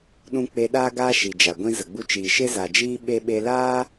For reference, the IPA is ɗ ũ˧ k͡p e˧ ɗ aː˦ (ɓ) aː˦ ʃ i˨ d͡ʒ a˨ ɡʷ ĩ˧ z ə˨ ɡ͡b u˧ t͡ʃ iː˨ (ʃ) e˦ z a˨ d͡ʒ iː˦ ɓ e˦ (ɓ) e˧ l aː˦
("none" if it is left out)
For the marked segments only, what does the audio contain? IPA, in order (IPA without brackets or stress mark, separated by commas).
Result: ɡ, ʃ, ɓ